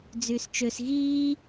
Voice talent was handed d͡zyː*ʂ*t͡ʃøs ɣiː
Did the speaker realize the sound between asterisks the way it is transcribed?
no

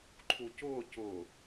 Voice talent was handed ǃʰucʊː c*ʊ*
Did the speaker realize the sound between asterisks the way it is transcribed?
yes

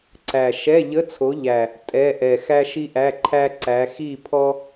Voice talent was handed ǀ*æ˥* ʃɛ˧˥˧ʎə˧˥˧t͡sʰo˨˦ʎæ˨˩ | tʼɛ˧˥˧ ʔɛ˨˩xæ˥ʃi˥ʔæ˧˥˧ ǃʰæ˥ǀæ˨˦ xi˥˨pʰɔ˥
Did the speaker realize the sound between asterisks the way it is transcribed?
no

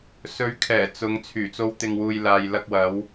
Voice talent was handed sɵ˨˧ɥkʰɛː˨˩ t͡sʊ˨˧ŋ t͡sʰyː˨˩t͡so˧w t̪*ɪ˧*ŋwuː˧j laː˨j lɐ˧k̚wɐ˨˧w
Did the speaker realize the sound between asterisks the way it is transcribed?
yes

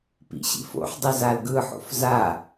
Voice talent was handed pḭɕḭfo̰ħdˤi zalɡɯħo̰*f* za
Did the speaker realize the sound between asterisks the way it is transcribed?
yes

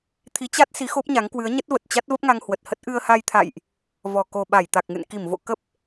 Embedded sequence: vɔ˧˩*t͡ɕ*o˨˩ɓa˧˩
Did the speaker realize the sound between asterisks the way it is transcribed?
no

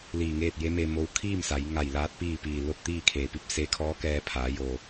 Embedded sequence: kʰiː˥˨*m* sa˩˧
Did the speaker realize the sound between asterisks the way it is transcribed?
yes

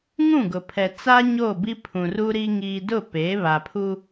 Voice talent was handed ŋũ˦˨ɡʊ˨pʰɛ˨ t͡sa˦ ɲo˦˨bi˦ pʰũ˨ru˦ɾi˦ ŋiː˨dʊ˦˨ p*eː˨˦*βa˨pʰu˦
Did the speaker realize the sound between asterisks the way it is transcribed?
yes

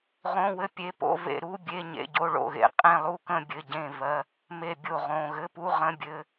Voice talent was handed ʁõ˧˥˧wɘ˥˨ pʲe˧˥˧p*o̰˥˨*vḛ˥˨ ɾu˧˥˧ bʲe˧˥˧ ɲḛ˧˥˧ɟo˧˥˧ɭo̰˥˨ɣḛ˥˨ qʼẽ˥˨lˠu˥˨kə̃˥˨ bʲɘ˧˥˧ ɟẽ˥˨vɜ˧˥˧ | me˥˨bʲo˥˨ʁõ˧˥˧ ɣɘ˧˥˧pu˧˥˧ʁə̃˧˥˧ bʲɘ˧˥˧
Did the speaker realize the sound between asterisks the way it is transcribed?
no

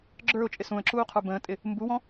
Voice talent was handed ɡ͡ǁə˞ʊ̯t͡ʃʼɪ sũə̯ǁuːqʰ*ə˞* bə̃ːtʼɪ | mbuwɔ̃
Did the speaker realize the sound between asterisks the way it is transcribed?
yes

